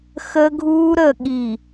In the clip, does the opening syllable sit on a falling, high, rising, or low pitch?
high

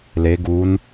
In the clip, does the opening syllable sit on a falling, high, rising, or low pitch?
rising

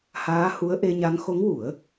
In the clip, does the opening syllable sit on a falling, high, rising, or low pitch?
rising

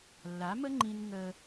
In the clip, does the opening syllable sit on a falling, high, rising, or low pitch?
rising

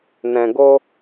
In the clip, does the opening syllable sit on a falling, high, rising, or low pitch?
low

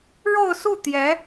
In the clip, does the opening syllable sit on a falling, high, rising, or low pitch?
falling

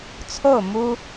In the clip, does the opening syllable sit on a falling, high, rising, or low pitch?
falling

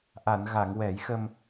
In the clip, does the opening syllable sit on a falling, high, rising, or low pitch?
low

